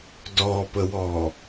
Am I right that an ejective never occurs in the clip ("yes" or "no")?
yes